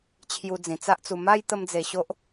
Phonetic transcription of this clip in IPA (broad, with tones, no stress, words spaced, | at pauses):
t͡ɕʰju˧d͡zĩ˨˩ t͡sa˦ʔt͡su˧ ma˦j t̪ə˦md͡ze˧ɕo˦ʔ